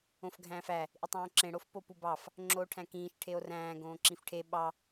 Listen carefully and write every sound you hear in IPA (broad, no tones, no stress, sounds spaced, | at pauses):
õ f ɡʱ æ̃ː f æ | ʔ i tˤ õː ǁ ẽ ɽ o f p o p u b ɑ f | ŋ͡ǁ oː ʈʰ æ̃ k ĩː ʃ ʈʰ e o̯ r æ̃ː ɡ õː ǁ ĩ f ʈʰ e ɓ ɑ